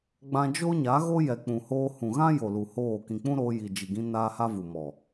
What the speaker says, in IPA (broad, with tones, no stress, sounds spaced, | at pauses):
ɡ͡b ã˧ d͡ʒ o˦ ɲ a˨˦ ɣ o˦ j ɛ˨ k͡p ũ˨ h oː˧ h ũ˨ ɣ ã˦ j o˨ l u˨ h oː˦˨ k ĩ˨ k͡p ũ˦ ɾ oː˧ j i˨ d͡ʒ i˨ ɡ ĩ˧ n aː˦ h a˦ v u˨ m ɔ˨